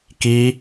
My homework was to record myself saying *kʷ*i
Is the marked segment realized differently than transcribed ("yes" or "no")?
yes